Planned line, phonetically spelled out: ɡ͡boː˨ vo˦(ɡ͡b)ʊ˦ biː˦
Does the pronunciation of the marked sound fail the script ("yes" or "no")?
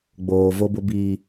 yes